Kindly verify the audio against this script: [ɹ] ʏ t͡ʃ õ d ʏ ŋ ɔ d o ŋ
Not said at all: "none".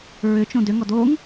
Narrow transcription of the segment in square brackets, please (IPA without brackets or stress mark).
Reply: ɹ